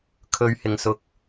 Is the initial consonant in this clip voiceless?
yes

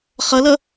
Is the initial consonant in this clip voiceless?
yes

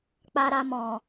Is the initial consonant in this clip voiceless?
yes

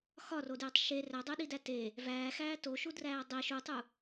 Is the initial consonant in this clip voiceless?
yes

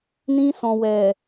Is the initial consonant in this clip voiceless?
no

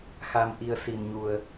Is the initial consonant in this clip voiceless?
yes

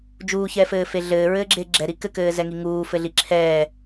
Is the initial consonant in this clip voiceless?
no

